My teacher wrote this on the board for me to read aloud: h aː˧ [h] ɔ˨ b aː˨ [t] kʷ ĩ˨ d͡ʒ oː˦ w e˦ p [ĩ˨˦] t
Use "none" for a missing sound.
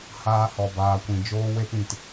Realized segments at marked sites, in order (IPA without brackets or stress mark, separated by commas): h, none, ĩ˨